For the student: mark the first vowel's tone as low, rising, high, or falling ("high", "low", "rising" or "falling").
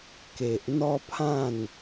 low